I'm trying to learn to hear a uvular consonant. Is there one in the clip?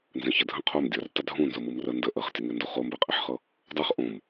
yes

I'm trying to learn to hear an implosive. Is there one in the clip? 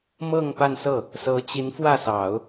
no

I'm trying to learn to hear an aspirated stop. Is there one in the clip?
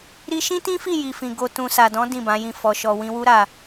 no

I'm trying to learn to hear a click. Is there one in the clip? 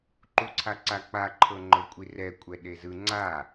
yes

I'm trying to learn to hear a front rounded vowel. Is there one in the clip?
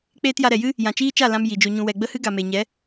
no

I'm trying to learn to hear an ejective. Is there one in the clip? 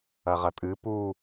yes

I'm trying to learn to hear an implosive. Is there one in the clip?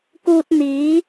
no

